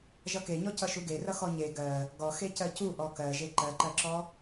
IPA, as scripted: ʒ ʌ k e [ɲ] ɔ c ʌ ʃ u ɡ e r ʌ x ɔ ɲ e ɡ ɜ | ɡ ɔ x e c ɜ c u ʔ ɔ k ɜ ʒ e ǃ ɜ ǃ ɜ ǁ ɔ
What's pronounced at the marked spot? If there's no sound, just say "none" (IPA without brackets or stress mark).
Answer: ɲ